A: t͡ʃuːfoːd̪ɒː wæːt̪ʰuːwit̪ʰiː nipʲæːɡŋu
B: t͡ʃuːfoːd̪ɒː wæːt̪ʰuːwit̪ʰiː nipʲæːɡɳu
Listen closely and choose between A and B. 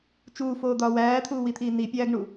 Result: B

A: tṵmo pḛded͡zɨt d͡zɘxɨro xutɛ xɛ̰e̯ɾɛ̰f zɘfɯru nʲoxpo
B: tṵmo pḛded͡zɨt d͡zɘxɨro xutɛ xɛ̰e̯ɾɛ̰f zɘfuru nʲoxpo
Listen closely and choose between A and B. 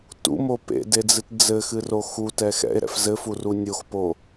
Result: B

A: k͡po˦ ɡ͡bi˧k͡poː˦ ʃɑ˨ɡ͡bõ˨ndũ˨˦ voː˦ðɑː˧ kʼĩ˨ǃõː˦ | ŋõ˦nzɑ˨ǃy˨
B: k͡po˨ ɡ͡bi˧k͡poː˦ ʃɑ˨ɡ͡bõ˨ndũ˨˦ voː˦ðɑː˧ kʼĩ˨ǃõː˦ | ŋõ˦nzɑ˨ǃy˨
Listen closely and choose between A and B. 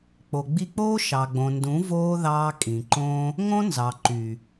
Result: B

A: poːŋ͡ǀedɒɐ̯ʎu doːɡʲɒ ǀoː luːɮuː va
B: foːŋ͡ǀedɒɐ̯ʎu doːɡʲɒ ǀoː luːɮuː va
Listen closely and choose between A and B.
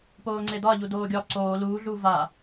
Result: A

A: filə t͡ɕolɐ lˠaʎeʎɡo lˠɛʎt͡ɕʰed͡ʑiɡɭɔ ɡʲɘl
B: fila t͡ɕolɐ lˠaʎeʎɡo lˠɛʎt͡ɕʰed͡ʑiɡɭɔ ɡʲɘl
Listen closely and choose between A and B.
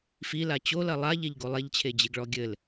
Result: B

